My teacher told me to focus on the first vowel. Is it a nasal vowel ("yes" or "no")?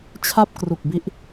no